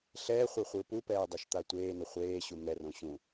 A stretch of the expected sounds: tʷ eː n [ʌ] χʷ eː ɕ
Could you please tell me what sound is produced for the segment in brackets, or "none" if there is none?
ʌ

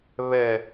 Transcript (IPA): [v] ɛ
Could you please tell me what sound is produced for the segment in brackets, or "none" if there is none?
β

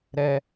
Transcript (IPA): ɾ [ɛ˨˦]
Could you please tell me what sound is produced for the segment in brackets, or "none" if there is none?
ɛ˦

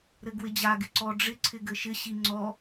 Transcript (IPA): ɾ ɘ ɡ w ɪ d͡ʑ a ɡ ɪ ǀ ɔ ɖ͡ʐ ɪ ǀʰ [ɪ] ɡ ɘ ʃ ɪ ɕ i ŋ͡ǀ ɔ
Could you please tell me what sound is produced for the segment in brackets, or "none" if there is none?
ɪ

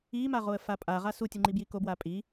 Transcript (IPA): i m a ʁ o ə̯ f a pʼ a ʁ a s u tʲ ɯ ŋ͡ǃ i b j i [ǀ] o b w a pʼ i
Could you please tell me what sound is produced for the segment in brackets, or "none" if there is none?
k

